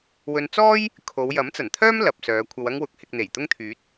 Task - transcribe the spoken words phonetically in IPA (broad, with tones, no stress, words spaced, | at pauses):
wɵ˧n t͡sɔː˥j | kʰo˨˧wjɐ˨˥m t͡sɐ˨˩nt̪ʰœː˥m lɐ˨p̚sœː˨˧ kʷʰɐ˧wɐ˥ŋwʊ˧k̚hɪ˧k̚ n̪e˨˩j t̪ʊ˥ŋt̪ʰyː˨˥t̚